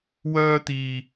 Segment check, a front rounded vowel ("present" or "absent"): present